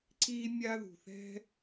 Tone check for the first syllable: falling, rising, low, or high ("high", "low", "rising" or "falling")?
high